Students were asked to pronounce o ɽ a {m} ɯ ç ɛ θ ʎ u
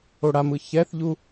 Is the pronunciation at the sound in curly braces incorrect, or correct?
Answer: correct